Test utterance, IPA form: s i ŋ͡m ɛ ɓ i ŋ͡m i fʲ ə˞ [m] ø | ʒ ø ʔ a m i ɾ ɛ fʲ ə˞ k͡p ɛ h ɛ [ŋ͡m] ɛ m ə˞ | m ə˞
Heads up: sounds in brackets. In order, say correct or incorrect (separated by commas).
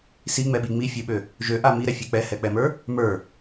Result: incorrect, incorrect